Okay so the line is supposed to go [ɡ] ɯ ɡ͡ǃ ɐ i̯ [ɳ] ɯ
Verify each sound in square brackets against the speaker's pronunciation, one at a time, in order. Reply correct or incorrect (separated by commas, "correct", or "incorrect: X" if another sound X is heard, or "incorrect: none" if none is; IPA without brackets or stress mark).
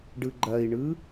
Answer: incorrect: ɖ, correct